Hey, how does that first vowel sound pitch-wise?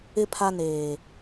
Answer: low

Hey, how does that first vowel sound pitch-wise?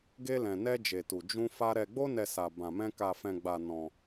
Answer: high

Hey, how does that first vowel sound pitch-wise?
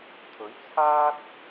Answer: rising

